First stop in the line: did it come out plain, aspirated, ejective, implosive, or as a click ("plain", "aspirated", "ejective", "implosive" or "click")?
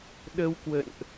implosive